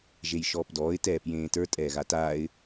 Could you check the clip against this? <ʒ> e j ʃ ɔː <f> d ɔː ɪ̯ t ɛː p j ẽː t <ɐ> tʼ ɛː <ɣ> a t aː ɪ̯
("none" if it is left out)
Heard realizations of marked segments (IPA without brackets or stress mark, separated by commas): ʒ, p, ə˞, ɣ